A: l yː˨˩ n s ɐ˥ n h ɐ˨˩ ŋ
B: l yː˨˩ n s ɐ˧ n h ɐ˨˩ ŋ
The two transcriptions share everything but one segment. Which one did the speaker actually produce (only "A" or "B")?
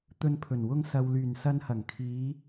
B